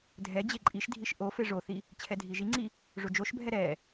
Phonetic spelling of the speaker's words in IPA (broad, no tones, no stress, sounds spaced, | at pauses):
dʱ ɛ d͡ʑ e ǃʼ i ʃ dʱ i ʃ ʔ o f e ʐ o θ i | t͡ɕʰ ɛ dʱ i ʒ i ŋ͡ǀ i | ʐ o d͡ʒ o ʃ bʱ ɛ ɾ ɛ